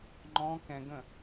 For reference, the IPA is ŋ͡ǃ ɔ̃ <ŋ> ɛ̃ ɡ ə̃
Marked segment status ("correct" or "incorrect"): incorrect